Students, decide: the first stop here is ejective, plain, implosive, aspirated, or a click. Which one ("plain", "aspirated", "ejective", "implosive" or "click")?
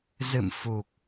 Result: plain